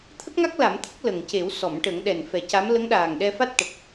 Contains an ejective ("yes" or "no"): no